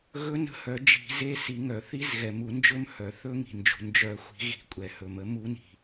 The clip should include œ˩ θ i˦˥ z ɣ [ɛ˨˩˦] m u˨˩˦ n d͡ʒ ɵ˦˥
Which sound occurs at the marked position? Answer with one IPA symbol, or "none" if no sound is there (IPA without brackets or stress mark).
ɛ˩